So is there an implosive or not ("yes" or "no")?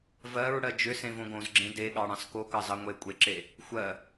yes